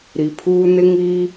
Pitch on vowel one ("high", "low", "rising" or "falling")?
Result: low